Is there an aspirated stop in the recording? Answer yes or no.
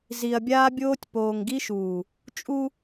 no